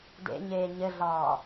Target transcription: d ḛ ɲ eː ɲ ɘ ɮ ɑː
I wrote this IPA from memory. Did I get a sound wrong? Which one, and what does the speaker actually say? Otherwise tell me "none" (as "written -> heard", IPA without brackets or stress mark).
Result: none